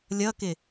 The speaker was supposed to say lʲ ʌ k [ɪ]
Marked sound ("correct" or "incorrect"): correct